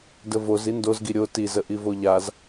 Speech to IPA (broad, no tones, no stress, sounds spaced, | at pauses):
d ə v o z i n d o z ɡ i ɾʲ o t i z ə ʔ i v o ʎ a z